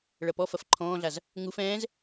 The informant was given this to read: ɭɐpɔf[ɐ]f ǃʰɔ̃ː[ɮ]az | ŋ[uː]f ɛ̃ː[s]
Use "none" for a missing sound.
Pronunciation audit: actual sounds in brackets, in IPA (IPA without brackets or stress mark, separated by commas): ɐ, ɮ, u, z